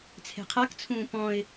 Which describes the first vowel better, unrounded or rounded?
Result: unrounded